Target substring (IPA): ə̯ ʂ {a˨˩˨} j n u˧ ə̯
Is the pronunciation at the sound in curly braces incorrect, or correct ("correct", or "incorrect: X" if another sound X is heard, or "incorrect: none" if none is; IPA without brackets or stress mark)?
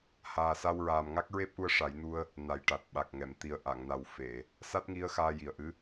incorrect: a˨˩˦